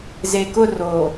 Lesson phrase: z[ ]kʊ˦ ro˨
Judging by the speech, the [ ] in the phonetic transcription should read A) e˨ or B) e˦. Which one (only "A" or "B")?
A